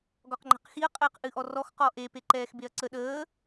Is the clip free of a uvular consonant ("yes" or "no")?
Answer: no